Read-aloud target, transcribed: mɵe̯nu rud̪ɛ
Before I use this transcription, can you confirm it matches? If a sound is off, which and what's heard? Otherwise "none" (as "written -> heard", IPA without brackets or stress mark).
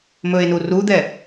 none